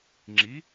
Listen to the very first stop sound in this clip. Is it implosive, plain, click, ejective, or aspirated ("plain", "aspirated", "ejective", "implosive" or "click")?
click